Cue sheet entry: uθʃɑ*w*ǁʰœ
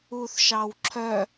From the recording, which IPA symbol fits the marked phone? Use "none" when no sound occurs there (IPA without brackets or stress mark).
w